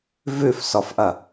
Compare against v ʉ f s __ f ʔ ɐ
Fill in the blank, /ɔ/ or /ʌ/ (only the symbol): ɔ